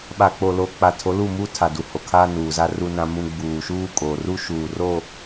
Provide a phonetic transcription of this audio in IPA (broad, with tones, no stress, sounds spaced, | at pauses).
ɓ a˨ k͡p o˨ l o˨ k͡p a˨ tʰ o˨˦ l u˦˨ m u˦ tʰ a˨ d u˨ h o˨ kʰ aː˦ n uː˨ z a˦ r u˦ n ã˦ m ũ˦ ɡ͡b uː˨ ʃ uː˦ kʼ o˨ r u˦ ʃ uː˨ r o˦˨